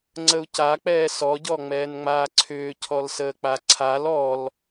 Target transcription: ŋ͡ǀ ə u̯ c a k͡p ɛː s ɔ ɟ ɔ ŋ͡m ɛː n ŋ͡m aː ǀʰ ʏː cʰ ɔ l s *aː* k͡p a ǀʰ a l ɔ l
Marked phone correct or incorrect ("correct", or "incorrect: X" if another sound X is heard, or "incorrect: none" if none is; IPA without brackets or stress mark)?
incorrect: əː